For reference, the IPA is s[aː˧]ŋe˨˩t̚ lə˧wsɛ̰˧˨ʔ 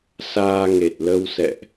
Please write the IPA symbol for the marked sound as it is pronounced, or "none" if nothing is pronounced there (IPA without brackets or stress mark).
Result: aː˧